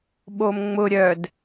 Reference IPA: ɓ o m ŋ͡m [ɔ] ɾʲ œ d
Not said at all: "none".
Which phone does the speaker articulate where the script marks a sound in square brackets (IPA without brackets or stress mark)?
ʊ